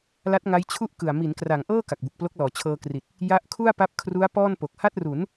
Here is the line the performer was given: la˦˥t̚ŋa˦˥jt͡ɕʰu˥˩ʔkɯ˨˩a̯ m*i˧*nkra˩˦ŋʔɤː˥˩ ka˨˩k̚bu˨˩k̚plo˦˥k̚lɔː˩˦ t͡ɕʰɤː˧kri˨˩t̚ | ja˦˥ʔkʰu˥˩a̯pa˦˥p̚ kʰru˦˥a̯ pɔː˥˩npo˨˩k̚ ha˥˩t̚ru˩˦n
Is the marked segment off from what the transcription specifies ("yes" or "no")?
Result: yes